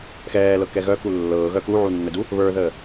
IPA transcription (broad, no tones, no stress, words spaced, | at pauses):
xɛːlɤkɛ ɣœku lːɤːɣœ kuʕunːədu | βə˞ðəː